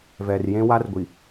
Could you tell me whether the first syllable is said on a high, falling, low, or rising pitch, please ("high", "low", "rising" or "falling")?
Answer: low